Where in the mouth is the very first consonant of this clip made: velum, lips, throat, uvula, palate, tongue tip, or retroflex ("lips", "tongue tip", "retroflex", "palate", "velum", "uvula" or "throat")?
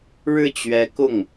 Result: retroflex